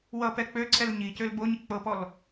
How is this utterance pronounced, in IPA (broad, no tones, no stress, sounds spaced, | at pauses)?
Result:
w ʌ p ɛ k͡p ø ǀʰ ɛ l ɲ i c ø l b o ɲ ɪ k͡p ɤ p ɔ l